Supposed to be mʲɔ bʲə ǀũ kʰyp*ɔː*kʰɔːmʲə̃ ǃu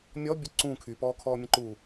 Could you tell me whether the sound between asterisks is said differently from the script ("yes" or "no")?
no